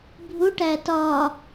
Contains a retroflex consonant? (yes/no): yes